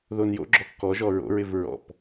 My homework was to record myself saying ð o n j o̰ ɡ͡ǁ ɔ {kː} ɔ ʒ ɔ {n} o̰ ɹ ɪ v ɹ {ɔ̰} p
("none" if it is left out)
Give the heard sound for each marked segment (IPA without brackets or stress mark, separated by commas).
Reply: kː, ɹ, ɔ̰